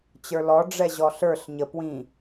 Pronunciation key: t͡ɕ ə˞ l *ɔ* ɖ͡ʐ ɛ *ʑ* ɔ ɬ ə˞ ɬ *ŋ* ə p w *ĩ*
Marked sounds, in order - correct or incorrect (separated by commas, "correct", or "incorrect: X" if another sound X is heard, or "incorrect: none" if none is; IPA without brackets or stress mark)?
correct, correct, incorrect: ɲ, correct